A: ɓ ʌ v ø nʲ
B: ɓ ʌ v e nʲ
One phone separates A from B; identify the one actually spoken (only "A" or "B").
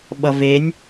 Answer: B